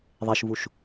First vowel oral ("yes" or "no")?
yes